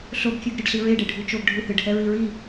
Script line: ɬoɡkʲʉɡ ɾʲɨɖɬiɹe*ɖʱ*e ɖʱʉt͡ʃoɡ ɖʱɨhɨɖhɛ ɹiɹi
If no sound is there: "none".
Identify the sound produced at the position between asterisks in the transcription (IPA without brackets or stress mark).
ɖ